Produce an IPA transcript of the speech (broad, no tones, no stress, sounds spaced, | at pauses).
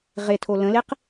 ʁ e tʰ o l ə̃ l e q